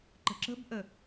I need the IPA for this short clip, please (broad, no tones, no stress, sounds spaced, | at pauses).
ǃ ə̤ ǁ ə̤ b ʔ ə